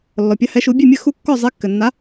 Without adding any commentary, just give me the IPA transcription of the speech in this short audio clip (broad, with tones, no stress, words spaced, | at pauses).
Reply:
lːɔ˨pʲa˧˥hɛ˧˥ʃu˧˥ bʲe˥˧mʲɘ˥˧ xu˥˧kːɔ˥˧zˤe˧˥ kːɘ˨nːa˧˥